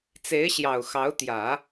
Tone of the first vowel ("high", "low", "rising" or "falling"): rising